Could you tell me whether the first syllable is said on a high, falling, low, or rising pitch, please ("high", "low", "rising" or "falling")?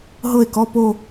falling